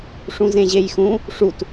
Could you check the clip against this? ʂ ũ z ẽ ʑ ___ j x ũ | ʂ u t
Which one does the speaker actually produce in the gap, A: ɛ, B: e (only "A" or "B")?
B